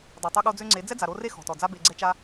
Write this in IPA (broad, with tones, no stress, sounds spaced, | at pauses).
dˤ a˨ tˤ ø˧ ɠ o˧ d͡z ø˧ ŋ͡ǀ e˨˦ d͡z ɛ˦ d͡z a˨ ɾ o˧ r e˦ x ɔ̤˨ t ɔ˨ d͡z a˦ b e˧ ɡ͡ǀ ɛ˦ t͡ʃ a˦